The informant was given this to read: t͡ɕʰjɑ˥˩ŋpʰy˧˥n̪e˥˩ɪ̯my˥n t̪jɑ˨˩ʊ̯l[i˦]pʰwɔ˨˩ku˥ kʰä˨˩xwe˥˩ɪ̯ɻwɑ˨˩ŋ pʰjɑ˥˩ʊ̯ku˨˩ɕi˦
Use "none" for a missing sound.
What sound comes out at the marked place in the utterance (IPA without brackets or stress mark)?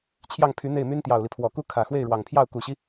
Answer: i˦